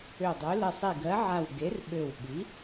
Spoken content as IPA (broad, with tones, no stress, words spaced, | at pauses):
ø˧˩dˤø˨˥ lə˧˩sˤi˧˩ɡɜ˨˥ʕa˧˩w ɡe˨˥rɓø˧˩wɓi˨˥